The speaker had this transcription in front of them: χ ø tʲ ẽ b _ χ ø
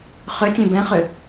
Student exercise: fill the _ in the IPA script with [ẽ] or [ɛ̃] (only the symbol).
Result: ɛ̃